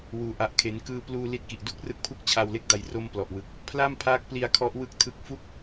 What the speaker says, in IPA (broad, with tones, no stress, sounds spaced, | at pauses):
w uː˧ ʔ a˦˥ ʔ kʰ e˦˥ n k ɯː˧ p l uː˧ l i˦˥ t̚ k i˨˩ ʔ d u˦˥ k̚ r ɯ˦˥ k̚ pʰ u˥˩ k̚ t͡ɕʰ a˧ w l e˥˩ k̚ d a˧ j r o˧ m p l ɔ˨˩ ʔ w ɯ˨˩ k̚ | pʰ l a˥˩ m pʰ aː˦˥ k̚ p l i˧ a̯ kʰ ɔ˦˥ ʔ w ɯ˦˥ k̚ tʰ ɯ˦˥ k̚ f u˥˩ k̚